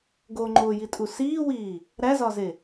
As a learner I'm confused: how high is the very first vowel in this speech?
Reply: mid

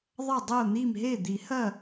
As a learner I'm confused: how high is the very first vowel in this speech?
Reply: low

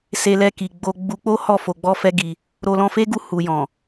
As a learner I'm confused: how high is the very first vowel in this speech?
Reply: mid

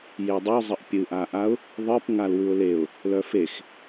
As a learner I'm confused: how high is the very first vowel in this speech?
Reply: mid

